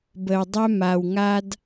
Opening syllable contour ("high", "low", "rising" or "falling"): low